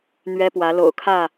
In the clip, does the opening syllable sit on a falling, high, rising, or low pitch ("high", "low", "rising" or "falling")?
high